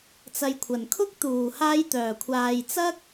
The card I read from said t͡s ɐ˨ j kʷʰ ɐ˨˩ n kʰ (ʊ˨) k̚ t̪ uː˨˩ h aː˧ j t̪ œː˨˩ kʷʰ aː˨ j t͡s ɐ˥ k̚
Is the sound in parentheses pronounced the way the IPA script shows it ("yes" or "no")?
no